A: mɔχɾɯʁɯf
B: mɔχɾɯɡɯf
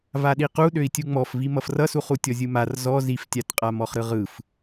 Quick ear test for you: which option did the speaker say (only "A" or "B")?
A